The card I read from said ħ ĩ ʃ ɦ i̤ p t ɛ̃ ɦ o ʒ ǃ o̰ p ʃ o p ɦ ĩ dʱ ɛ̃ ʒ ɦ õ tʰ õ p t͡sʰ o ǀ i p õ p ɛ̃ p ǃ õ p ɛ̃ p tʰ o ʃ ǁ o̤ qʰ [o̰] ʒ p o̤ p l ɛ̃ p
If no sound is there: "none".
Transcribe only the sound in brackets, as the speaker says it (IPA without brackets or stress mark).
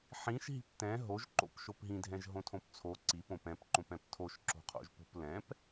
o̰